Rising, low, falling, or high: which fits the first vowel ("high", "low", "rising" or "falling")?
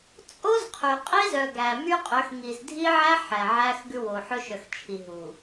high